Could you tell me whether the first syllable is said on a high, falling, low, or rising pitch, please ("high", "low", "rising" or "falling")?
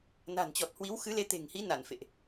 low